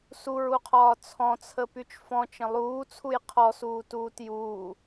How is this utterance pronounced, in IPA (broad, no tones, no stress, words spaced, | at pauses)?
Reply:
suɹuqʰɒː t͡sʰɔ̃t͡sʰəpyt͡ʃ fɔ̃t͡ʃə̃ lˠuːt͡sʰuj qʰɔsuːtuːt juː